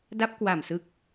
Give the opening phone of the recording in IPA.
d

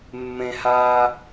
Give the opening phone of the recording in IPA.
mː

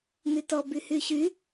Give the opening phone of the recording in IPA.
n̪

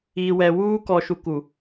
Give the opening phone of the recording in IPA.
iː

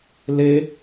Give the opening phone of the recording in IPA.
l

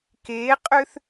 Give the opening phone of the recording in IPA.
k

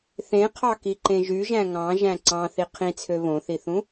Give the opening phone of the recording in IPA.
θ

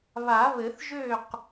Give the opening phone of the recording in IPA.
β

